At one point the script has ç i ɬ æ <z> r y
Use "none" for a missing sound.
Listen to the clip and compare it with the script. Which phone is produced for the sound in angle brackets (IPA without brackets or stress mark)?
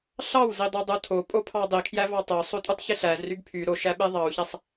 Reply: z